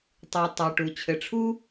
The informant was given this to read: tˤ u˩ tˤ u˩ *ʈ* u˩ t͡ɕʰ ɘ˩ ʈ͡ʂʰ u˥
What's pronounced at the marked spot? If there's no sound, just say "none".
ʈ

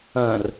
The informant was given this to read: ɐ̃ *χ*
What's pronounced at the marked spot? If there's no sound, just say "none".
r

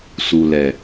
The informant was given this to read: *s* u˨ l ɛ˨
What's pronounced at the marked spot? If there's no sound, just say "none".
s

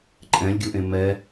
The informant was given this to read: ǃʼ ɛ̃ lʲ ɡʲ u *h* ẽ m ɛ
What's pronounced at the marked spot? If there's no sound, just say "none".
ʔ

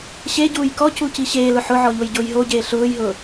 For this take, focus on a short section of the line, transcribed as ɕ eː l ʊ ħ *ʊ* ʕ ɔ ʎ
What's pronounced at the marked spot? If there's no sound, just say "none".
ʊ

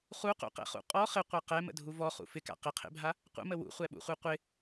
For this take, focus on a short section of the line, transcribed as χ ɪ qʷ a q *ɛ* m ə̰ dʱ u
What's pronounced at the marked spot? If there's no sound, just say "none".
ɛ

